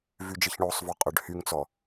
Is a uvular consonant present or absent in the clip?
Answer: present